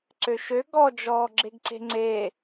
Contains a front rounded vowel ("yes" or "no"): yes